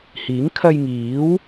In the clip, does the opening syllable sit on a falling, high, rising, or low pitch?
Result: rising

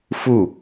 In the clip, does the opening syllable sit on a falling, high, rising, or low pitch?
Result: falling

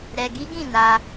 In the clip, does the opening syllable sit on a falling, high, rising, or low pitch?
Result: low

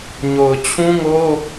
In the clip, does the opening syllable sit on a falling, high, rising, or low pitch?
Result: low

